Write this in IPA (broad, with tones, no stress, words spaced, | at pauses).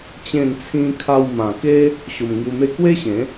t͡ɕẽ˥˧nt͡sʰĩ˦ kʰa˧wmã˨˩ ke˦ | ɕo˧m ŋju˧me˥˧ kwe˦ɕẽ˨˦